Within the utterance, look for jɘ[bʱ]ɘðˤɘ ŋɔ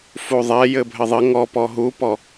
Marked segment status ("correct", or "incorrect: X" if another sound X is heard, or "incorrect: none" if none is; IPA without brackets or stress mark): correct